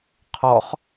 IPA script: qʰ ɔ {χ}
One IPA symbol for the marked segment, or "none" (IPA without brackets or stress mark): χ